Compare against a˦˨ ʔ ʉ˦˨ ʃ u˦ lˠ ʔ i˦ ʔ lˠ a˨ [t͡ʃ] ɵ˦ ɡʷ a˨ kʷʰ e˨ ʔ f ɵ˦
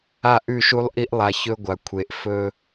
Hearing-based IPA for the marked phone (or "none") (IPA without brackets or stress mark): ç